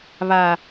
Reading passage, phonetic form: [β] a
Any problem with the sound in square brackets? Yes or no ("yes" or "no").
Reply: no